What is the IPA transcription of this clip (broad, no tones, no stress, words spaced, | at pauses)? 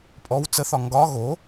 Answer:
pʼɔw t͡səθɒ ŋɡɒ ɣo